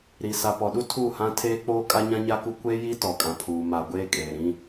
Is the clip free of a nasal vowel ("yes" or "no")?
no